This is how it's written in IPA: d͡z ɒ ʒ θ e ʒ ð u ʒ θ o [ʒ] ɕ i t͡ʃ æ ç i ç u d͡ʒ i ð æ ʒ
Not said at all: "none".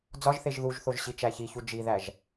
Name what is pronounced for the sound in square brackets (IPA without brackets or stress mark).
ʒ